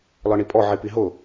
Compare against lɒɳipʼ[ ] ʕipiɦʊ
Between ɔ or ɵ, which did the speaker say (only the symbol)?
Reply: ɔ